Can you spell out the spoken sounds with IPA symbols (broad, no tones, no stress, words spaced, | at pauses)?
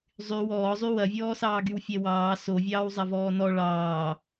zˤy wɔːzˤy wɐvʲɔːsɑːɡyw fʲɛwɑː sovʲɑːw zˤɐvɔːnɔ ɭɑː